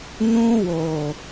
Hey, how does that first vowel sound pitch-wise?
high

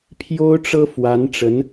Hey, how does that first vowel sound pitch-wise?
high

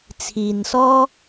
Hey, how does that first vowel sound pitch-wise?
low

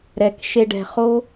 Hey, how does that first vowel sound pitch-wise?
low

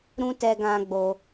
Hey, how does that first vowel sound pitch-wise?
high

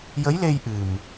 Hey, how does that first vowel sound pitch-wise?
rising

